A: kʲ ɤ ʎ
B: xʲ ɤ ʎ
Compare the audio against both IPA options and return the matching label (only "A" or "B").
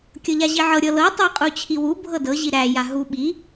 A